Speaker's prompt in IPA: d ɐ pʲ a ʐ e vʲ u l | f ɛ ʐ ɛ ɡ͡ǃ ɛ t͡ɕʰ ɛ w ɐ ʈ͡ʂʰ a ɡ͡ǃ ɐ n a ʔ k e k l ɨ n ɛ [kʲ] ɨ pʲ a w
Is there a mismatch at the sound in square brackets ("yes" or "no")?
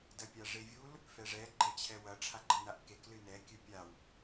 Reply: no